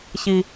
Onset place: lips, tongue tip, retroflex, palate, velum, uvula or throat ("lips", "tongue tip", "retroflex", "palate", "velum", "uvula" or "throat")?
palate